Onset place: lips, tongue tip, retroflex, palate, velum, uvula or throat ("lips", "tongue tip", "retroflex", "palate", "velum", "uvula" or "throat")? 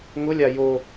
velum